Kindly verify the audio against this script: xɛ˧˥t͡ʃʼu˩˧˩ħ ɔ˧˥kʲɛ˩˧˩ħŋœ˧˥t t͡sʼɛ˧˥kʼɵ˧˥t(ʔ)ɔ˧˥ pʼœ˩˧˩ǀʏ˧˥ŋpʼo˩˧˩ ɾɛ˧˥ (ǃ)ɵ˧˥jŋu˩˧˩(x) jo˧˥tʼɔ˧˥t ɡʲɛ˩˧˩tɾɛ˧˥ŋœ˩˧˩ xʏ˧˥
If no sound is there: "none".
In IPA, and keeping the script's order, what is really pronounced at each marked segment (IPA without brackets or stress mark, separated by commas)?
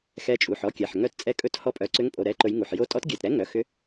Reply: h, ǃ, ħ